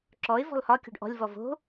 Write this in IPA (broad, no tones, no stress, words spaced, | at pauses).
ǁɔɪ̯ vɔ̤lhɒkʲɔ̤ɖ ʔɔ̤lʲvɔ vo̤